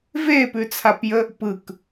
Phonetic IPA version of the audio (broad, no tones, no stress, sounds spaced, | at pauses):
v e p ʉ t͡sʰ a p j ə | p ɯ k